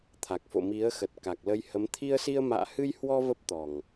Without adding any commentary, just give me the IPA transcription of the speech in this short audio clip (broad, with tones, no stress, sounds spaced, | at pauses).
t̪ʰ a˨˩ k̚ f o̰˧˨ m i˨˦ ə̯ x ə˨˩ t̚ k a˨˩ k̚ l ə˧ j h ə˨˦ m t̪ʰ i˧ ə̯ s i˧ ə̯ m a̰ː˧˨ h ɨ˧ j h w ɔ˧ v ə˦˥ p̚ t̪ ɔ˨˩ ŋ